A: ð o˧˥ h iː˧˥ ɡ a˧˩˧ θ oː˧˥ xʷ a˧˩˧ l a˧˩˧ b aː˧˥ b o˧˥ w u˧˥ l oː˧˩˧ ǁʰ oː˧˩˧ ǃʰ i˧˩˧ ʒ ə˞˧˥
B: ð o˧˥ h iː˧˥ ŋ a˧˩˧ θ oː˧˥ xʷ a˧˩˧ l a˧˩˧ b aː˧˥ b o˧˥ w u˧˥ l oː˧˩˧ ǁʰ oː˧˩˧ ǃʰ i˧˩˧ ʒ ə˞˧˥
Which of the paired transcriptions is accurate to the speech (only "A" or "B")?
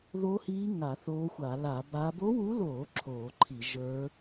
B